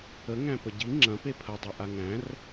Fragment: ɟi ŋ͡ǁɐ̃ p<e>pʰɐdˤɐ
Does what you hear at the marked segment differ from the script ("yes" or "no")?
no